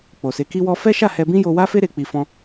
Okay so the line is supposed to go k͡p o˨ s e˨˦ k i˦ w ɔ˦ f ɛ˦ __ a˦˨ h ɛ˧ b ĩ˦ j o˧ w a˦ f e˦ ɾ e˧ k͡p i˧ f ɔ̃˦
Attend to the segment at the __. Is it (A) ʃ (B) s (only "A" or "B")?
A